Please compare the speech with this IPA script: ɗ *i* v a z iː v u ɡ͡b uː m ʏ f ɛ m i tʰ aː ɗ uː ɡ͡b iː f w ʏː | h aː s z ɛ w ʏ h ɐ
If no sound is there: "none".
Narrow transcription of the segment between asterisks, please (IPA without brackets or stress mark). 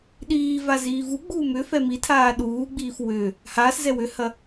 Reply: iː